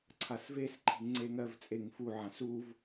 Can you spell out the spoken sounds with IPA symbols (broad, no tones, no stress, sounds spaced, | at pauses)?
ǀʰ a s v e s ǃʰ i̤ ŋ ŋ͡ǀ e ŋ ɜ v t͡sʼ e ŋ f u ʕ ã s u v